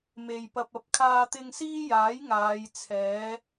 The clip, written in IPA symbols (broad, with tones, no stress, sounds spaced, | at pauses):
m e˨ j p ɐ˧ p̚ ɐ˨˥ p̚ kʰ aː˧ t̪ ɪ˧ ŋ s iː˥ j aː˨˥ j ŋ aː˨˧ j t͡sʰ ɛː˨˥